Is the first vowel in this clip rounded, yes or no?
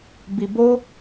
no